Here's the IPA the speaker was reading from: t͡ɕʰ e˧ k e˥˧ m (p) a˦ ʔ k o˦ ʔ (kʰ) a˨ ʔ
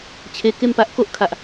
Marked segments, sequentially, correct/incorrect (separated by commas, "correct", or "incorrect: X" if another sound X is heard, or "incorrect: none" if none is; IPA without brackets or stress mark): correct, correct